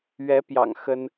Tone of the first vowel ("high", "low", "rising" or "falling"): rising